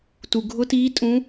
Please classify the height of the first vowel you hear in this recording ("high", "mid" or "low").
high